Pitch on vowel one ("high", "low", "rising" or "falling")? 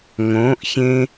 rising